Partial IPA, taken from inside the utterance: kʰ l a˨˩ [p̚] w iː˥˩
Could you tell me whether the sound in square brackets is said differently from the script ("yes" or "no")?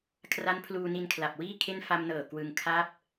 no